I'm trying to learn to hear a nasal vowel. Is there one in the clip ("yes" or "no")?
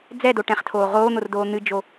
yes